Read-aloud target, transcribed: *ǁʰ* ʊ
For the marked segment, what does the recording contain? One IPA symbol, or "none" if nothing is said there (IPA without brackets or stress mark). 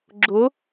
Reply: ɡ͡ǁ